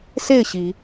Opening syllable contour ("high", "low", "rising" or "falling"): falling